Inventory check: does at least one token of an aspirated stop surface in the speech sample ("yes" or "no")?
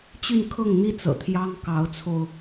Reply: yes